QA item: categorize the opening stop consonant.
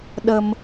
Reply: implosive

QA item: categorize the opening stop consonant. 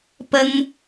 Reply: plain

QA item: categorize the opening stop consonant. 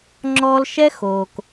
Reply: click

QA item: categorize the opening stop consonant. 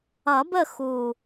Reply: plain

